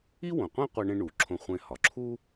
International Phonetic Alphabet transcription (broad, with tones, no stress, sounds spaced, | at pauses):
i˥ w õ˩ qʷ ẽ˥ qʷ æ˧ ɳ ẽ˧ ɳ u˩ ǁʰ õ˧ χʷ ẽ˧ h ɒ˩ ǁʰ u˥